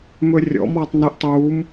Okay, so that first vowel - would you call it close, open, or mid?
mid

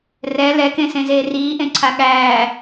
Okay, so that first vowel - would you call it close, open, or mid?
mid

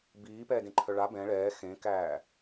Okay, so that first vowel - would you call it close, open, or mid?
close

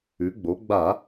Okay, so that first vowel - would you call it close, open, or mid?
close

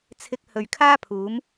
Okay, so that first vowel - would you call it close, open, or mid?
close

